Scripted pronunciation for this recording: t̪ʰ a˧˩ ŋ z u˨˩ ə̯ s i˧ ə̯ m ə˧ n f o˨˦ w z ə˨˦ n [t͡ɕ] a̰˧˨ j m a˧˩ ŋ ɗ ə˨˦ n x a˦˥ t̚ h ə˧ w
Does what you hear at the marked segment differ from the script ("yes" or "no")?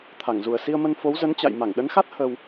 no